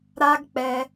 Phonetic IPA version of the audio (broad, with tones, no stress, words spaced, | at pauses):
ɾa˦ɡk͡pɛ˧